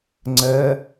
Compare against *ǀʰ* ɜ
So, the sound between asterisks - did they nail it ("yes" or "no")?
no